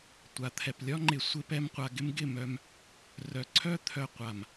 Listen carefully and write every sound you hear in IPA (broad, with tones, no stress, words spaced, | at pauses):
tʷa˨t̪ʰɛ˨p lʲɒ˦ŋ͡ǃɪ˨ sʷɪ˧ pɛ˧mqʷa˨ɡɪ˦m ɡɪ˦˨mœ˧m | rœ˨ǀʰœ˦ t̪ʰœ˨ qʷa˨m